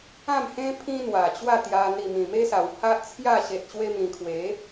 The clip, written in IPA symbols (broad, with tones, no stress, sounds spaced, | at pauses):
ã˥˧ m h ẽ˦ pʰ ĩ˦ n̪ w a˨˩ t͡ɕ w a˥˧ t̪ j a˧ n̪ i˨˩ m ĩ˨˩ m e˦ s a˨˩ w h a˦ ʔ t͡sʰ j a˥˧ ɕ e˨ t̚ ɕ w e˧ m ĩ˨˩ kʰ w e˨˦